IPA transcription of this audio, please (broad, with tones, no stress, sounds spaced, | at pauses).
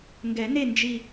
ŋ ɡ ɛ˨˩˦ n e˥˨ n d͡ʒ i˥˨